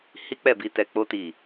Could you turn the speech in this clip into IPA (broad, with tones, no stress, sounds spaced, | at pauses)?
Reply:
h i˦ k͡p ɛ˦˨ b i˧ t ɛ˨ k͡p o˧ t i˨